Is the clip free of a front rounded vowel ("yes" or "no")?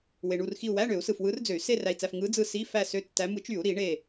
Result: no